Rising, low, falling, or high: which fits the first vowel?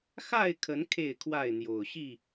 falling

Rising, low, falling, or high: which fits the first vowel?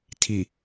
low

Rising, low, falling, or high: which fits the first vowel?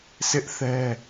high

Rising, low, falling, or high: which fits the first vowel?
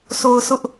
low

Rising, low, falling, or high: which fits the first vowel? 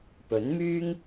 rising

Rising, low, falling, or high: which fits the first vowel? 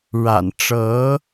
low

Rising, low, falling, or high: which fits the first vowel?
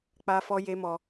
low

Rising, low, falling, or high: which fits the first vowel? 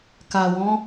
low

